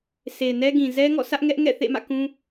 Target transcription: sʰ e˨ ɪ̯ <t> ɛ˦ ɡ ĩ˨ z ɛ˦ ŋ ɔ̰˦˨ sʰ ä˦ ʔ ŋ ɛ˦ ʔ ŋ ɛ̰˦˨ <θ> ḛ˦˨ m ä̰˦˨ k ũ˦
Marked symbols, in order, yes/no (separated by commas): no, yes